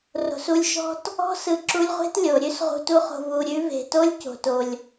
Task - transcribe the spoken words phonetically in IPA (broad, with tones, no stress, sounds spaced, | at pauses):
r o̤˨ s u˧ lʲ ʃ ɔ̤˦ t | ɔ̤˦ s ɯ˨ ǁ u˧ lʲ ʁʷ e̤˦ t lʲ o˨ ɾʲ ʉ˦ s ʁ ṳ˧ t u˦ χ o̤˧ v u˨ ɾʲ ʉ˨˦ v e̤˨ t o˦ lʲ c o̤˨ t o˨ lʲ